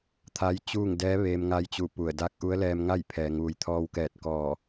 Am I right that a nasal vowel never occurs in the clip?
yes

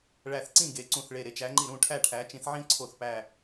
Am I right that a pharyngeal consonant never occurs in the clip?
no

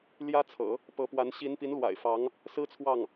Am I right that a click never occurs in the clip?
yes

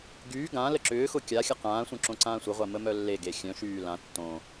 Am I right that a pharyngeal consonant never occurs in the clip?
yes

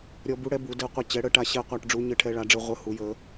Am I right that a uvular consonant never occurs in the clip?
no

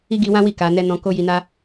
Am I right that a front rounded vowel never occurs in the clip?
yes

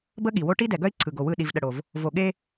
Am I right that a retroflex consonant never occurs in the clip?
no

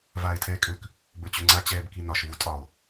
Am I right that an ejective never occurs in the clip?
no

